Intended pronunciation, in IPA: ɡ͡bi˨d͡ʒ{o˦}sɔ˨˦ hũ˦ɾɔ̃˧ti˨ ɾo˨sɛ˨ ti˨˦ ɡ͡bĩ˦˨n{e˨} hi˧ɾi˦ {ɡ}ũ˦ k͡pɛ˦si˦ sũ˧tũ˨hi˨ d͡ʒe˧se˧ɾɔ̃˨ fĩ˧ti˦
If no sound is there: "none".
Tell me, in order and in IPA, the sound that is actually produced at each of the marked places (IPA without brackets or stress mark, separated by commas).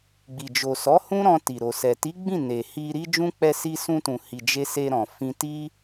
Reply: o˨, e˨, d͡ʒ